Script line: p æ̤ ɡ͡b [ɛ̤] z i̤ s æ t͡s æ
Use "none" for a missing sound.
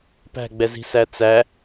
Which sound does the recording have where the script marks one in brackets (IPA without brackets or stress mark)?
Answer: ɛ